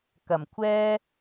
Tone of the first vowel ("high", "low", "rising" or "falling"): low